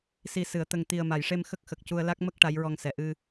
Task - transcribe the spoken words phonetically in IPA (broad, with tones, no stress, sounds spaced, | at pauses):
s i˨˩ s ɨ˨˩˨ ə̯ t̪ ə˨˩ ŋ t̪ i˨˩ ə̯ m a˨˩˨ j ʂ e˧ m x ə˦˥ k̚ x ə˨˩ k̚ c u˧ ə̯ l a˦˥ k̚ m ə˦˥ k̚ ʈ a˧˥ j ɹ ɔ˧ ŋ s ɛ˨˩ ʔ ɨ˧